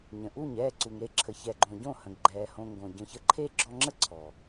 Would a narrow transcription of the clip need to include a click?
yes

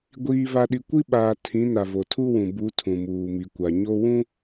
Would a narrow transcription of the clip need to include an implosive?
yes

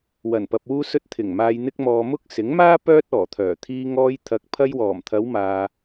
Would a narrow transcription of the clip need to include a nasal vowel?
no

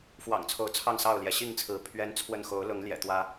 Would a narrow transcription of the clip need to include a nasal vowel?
no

